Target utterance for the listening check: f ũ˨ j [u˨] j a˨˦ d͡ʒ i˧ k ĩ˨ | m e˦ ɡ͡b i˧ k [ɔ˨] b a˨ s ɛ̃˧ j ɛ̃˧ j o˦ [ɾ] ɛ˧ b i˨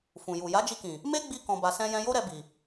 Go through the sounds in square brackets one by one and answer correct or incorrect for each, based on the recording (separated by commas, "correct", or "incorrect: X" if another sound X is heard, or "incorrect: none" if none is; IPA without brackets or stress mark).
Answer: correct, incorrect: ɔ̃˨, correct